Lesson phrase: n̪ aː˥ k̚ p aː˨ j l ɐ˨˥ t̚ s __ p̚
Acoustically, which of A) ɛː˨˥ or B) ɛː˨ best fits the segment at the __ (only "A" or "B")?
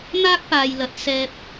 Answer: B